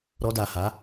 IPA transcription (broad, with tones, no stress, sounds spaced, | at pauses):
ɾ ɔ˧ d a˨ h a˨˦